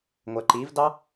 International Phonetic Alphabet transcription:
ŋʷɛǃivdɑ

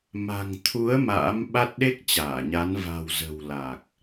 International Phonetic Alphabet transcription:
ma̤˨˩ŋ t̪ʰu˨˦ə̯ ma̰ː˧˥m ɓa˦˥t̚ɗe˦˥k̚ t͡ɕaː˧˩ɲa˨˦n va̤˨˩wzə̤˨˩w la˨˩k̚

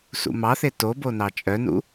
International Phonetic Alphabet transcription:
sṵmɑθe tobo nɑt͡ʃʼœnṵ

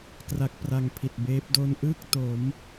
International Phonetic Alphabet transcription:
kra˦˥k̚pra˧ŋpʰi˨˩t̚beː˦˥p̚ do˧nʔɯː˥˩k̚to˩˦m

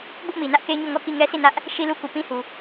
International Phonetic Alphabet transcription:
bʊ˦ʔmi˨nä˦ʔ ke˦ɲo˦˨ŋɔ˦˨ ki˦˨ŋɛ˦sʰi˦˨nä˦ʔ | ʃi˦lu˦ku˨ pĩ˦hu˨

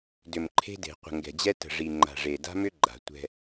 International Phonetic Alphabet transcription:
dʏ˨mǃʰe̤˦de̤˨ qʷə̤˨ŋɡɛ̤˨d͡ʑɛ˦ tə̤˨ʐi˨ŋ͡ǃa̤˨ʐe˨ da̤˦mʏ˦ ɡ͡ǃa̤˨ tʷɛ̤˦

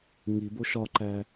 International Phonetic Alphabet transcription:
ŋibo ʃɒǃæ

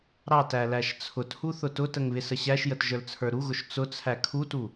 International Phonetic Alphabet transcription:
ɾɑtæ læʃt͡sʰʊthu θʊtʊtəŋ βɪsəɕæʃjət ʒə˞lt͡sʰə˞ɾuɣʊʃ t͡sʊt͡sʰæ kʰutu

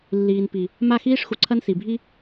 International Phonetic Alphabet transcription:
lːiː˨npi˨ | ma˦˨xiː˦ʂxu˨ǀʰɐ˦n si˨bʱi˦

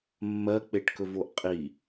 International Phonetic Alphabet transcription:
mːɜk͡peʈkɵvoʔ qʼi

